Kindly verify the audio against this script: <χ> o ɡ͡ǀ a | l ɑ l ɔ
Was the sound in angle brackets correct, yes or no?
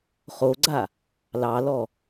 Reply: yes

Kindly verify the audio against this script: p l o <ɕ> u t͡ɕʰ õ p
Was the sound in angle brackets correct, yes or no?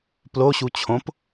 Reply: yes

